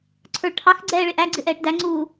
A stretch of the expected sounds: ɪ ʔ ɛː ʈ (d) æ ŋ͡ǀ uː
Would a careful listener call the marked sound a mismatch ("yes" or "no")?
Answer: no